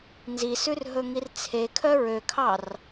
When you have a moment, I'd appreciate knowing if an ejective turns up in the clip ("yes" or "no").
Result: no